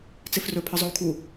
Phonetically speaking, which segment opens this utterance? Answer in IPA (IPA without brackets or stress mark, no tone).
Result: t͡s